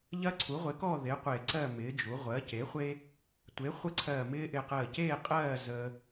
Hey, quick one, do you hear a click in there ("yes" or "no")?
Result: yes